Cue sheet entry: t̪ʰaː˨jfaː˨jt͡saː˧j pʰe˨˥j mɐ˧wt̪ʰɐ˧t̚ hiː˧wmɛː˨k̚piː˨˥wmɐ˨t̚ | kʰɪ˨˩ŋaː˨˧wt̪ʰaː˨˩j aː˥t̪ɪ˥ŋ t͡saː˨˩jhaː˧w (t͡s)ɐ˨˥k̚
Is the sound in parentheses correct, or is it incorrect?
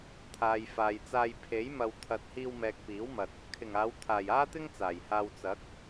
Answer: correct